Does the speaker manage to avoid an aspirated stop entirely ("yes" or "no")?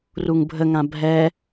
yes